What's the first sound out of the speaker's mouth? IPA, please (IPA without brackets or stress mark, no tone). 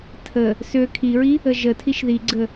tʰ